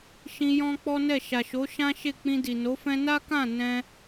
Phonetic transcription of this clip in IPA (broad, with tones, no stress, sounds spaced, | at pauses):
ʃ ĩ˧ j ɔ̃˦ k͡p ɔ˦ n ɛ˦˨ ʃ a˨ ʃ o˨˦ ʃ ã˦ ʃ e˦˨ k͡p ĩ˧ d i˨ n o˨˦ f ɛ̃˧ n a˦ k ã˦˨ n ɛ̃˧